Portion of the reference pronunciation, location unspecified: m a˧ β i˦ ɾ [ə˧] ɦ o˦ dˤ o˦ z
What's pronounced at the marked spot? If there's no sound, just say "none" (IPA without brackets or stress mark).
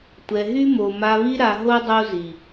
a˧